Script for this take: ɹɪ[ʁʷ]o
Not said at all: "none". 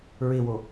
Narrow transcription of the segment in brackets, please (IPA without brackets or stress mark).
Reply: w